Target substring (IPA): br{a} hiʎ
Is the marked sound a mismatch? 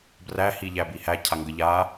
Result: yes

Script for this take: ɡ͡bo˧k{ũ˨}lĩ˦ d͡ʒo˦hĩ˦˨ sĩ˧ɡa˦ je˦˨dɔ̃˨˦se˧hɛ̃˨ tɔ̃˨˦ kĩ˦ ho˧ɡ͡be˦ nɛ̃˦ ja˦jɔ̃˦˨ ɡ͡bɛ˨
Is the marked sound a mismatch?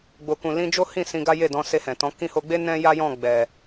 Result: yes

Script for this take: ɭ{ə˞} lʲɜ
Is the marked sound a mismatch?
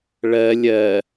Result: yes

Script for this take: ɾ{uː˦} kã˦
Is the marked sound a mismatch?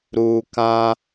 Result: yes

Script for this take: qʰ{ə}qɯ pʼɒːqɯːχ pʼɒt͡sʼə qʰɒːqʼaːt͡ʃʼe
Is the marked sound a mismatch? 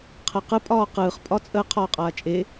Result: no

